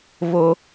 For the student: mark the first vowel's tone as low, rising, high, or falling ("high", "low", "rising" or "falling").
high